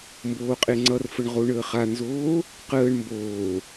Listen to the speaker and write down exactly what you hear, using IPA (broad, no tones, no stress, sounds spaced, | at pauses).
m b oː qʼ e ŋ͡ǀ ʌ r f ə ɳ ʁ o ɳ əː χ a n z oː | q əː ɳ m b oː